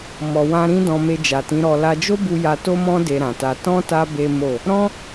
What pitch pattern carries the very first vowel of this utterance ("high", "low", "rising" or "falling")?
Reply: low